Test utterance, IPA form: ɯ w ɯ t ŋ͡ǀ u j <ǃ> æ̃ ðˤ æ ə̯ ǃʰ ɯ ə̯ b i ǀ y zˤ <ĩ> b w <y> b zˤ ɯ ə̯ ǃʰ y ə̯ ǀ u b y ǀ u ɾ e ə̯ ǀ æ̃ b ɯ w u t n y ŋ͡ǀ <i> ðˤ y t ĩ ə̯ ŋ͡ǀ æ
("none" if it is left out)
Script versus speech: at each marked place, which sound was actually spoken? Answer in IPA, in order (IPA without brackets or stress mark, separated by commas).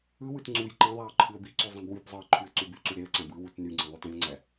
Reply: ǃ, ĩ, y, ĩ